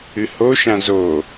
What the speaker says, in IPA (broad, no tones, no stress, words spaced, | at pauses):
ɨhoʃã zo